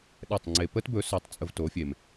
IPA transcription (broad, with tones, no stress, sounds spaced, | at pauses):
ɗ ɛ˥˩ tˤ ŋ͡ǀ e˧ p ə˥ t b ɵ˩˥ s œ˩˥ tˤ t͡sʼ ə˧ v t o˩˥ fʲ e˩ m